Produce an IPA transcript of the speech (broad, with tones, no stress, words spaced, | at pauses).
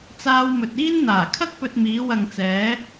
t͡saː˧wmɵ˨t̚iː˥nn̪aː˨˩ kʰɐ˥k̚pɵ˧t̚miː˨˧ wɐ˨ŋt͡sɛː˨˧